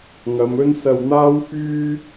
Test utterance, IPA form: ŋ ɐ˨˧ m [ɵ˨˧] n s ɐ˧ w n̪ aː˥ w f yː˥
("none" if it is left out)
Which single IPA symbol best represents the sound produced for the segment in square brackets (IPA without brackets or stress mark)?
ɵ˥